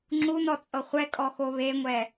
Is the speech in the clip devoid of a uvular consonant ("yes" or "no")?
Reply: no